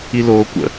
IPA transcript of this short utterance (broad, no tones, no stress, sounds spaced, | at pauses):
i l oː kʷ ə̰